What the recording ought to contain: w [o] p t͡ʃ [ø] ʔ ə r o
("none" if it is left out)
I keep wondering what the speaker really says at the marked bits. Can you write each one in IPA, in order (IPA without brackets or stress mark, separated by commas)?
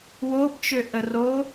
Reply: o, ø